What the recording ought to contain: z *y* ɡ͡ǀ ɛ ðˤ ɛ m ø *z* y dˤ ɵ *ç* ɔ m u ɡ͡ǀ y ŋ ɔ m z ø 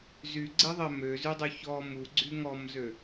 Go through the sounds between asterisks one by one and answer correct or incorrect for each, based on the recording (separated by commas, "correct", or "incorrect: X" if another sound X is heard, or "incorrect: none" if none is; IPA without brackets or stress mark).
correct, correct, correct